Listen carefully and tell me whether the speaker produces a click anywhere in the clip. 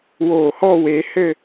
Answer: no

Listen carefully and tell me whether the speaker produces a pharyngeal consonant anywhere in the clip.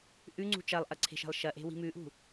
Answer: no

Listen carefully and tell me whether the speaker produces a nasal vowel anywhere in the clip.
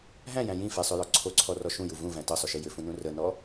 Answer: yes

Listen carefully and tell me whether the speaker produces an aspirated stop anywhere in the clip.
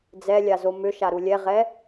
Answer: no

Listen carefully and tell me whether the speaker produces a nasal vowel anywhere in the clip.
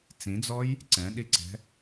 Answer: yes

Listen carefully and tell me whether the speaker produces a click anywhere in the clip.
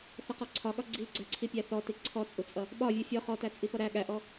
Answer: yes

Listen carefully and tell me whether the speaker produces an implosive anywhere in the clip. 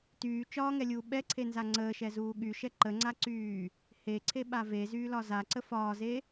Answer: yes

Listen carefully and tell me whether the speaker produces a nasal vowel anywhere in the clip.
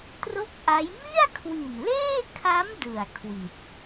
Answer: no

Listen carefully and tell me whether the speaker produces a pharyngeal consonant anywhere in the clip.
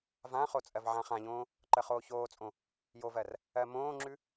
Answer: yes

